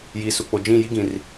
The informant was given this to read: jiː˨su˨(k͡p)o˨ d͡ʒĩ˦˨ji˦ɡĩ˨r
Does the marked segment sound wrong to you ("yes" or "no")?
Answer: no